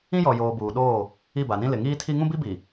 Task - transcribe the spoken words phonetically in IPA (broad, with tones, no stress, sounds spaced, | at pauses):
ĩ˦ j ɔ˨ j oː˨ b uː˨ ɗ oː˦˨ | i˦˨ b a˨ n ĩ˦ l ɪ˨ ŋ iː˦ tʰ i˦ ŋ ũ˦ b i˦ b i˨